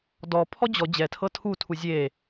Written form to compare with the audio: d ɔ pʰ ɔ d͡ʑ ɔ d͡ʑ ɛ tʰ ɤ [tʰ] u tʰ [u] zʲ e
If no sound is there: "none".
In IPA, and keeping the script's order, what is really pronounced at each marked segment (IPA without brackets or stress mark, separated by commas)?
tʰ, u